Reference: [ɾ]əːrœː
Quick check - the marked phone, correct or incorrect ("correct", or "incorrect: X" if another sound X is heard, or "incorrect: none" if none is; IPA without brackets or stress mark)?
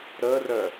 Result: correct